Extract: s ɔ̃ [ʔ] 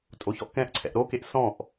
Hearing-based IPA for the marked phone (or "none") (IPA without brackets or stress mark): ʔ